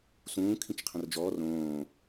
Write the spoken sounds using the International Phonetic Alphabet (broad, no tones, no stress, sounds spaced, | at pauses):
s ũː kʰ ĩ t͡ʃ qʰ ə̃ r d͡ʒ ɔː r õː